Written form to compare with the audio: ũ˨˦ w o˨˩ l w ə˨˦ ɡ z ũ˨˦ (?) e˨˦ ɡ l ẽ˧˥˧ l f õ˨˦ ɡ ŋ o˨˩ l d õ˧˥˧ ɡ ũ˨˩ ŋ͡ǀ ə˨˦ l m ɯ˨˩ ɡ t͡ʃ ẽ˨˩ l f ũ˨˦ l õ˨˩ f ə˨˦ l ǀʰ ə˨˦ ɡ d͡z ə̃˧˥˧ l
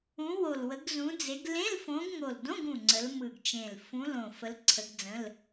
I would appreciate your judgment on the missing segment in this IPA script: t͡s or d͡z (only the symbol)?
d͡z